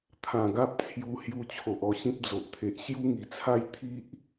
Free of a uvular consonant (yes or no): yes